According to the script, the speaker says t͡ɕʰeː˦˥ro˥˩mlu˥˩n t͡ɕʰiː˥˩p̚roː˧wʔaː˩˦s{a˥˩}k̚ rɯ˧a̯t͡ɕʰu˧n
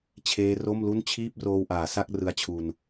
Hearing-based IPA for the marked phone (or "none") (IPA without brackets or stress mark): a˥˩